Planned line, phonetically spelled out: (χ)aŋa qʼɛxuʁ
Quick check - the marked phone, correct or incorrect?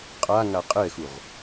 incorrect